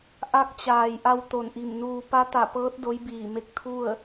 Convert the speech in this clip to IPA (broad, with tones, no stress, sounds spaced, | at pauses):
ʔ a˧˥ k̚ t͡ɕ aː˩ j ʔ a˧ w t̪ o˧˩ n ʔ i˧˩ m n uː˧ p a˧˥ t̪ a˧˩ p ɤː˧˥ t̚ d o˧˥ j b iː˧˩ m e˧˥ k̚ t̪ʰ u˥˨ ə̯